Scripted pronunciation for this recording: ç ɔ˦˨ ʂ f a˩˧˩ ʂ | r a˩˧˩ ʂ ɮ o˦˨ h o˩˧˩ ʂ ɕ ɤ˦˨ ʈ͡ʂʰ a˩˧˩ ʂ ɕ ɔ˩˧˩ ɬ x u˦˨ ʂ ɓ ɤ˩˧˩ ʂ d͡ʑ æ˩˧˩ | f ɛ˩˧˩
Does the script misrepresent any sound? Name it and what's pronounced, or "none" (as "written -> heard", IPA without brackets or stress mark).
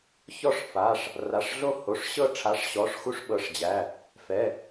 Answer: ɬ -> ʂ